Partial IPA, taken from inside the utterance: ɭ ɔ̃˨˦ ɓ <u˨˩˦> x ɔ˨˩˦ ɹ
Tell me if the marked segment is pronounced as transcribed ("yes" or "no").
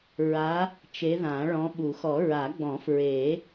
yes